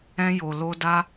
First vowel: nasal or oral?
nasal